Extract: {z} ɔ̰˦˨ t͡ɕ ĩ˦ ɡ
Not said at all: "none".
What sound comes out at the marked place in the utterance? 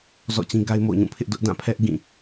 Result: z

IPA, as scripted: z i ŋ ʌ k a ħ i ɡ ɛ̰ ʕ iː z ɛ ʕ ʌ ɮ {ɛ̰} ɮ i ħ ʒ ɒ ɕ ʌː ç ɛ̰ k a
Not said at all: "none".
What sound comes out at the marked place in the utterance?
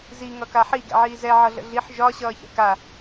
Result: ə̰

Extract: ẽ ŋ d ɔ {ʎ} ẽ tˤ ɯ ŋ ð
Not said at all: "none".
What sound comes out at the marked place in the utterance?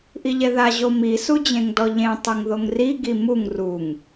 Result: ʎ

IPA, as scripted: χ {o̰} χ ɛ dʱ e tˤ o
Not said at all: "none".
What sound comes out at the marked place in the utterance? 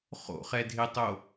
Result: o̰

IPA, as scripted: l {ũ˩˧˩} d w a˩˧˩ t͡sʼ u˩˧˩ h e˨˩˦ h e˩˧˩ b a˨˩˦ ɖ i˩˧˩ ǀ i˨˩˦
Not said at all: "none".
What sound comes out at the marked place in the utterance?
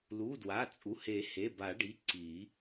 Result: u˩˧˩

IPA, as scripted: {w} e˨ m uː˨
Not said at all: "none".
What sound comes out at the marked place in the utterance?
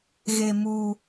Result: ɣ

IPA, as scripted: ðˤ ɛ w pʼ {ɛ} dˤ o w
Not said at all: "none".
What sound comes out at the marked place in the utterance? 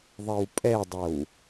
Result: ɛ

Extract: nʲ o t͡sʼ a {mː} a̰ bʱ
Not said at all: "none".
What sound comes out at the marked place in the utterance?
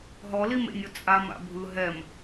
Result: m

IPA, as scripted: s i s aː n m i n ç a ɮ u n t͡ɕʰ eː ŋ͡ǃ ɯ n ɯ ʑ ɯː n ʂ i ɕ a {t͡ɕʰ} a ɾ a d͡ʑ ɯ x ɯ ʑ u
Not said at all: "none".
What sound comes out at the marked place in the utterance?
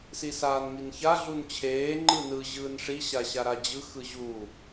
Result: ɕ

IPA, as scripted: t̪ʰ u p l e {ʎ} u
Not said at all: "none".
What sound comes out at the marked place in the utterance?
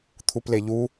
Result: ʎ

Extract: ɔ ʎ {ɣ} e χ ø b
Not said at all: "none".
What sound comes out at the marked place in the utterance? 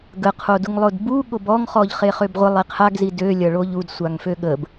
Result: χ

